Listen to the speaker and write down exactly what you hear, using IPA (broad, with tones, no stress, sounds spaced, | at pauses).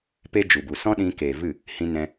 p e˦ d͡ʒ u˨ b u˨ s ɔ̃˦ ɗ ĩ˧ k eː˨ v ɨ˦˨ | h ĩ˧ n ɛ̃˧